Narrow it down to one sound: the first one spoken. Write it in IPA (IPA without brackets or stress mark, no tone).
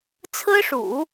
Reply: t͡sʰ